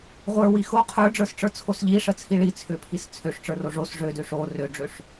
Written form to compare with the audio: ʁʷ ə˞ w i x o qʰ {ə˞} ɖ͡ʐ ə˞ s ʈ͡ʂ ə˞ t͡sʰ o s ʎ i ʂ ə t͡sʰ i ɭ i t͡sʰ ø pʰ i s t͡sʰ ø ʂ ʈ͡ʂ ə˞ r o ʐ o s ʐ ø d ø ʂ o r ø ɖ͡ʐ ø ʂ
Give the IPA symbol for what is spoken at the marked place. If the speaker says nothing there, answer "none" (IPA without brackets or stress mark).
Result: ə˞